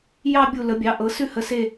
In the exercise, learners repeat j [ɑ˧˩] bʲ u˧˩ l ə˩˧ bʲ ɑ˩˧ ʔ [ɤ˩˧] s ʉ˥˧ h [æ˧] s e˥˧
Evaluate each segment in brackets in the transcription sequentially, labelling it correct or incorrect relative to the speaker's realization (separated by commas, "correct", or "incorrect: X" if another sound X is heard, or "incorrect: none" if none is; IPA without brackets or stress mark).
incorrect: ɑ˥˧, correct, incorrect: ə˧